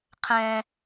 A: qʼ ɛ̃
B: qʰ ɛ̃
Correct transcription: B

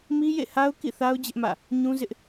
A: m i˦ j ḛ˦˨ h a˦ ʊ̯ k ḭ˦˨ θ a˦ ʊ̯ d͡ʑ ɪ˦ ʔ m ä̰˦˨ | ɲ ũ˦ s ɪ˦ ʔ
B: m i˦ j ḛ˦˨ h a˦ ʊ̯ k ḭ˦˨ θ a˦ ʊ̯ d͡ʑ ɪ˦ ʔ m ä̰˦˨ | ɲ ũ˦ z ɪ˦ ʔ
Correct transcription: B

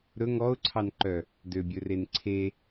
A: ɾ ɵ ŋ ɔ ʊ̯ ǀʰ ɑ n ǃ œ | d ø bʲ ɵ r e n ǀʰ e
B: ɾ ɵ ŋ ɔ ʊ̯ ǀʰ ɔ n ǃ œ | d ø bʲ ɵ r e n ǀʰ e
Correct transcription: A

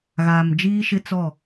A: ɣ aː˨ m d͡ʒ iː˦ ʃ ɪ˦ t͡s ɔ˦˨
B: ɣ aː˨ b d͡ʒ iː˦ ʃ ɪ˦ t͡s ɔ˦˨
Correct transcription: A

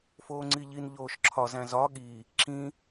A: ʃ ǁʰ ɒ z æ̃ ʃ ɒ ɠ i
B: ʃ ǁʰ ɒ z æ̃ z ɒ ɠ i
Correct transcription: B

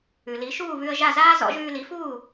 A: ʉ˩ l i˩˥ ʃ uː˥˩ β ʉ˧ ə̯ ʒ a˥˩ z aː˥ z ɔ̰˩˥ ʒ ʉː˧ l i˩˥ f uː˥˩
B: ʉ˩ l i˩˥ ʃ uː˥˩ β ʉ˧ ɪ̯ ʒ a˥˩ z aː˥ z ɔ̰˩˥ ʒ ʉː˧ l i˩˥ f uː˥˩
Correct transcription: A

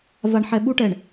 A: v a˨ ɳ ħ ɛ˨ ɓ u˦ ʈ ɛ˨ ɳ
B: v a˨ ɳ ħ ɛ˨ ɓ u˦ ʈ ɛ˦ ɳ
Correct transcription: A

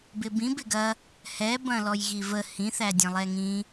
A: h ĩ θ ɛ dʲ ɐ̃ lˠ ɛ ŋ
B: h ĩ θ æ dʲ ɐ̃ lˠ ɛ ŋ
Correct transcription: B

